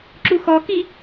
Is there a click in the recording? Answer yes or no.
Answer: yes